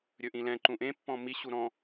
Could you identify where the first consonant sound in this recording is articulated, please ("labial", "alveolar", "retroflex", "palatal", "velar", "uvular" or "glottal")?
alveolar